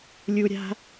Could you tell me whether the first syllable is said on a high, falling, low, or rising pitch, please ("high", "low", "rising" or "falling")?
low